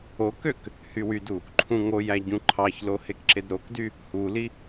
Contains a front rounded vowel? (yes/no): yes